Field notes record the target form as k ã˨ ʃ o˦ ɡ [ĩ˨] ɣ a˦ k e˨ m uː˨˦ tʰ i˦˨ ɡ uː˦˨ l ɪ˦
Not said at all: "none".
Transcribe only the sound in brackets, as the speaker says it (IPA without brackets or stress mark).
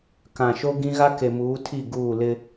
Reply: ĩ˦